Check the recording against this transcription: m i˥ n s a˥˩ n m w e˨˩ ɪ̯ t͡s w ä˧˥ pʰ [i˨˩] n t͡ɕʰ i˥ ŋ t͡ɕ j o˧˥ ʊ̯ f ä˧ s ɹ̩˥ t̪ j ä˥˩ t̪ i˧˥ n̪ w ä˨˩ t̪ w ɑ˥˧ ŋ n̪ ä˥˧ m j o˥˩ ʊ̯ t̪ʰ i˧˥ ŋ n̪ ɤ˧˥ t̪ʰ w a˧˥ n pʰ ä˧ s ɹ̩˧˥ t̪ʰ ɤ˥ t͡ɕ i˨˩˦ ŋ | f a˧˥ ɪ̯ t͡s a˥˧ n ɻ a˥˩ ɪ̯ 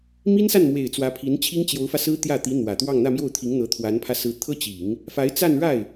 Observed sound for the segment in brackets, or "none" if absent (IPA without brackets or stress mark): i˧˥